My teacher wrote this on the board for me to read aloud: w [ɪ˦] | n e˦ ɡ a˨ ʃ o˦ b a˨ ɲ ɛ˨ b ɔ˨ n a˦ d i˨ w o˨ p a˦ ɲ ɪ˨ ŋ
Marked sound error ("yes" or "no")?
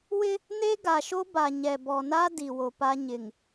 no